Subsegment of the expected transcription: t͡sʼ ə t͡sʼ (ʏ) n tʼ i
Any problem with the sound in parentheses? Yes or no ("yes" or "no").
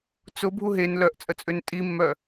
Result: no